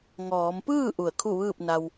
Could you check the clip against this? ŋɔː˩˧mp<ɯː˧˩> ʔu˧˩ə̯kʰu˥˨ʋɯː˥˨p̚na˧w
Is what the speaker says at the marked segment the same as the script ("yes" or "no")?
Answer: no